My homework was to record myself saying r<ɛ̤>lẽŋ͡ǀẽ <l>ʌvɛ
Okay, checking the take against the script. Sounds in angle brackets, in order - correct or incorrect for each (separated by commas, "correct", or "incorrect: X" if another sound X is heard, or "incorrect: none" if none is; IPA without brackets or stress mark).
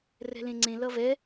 correct, correct